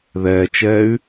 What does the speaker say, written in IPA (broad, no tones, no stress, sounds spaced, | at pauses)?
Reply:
ð ɛː t͡ʃ ɛː y̯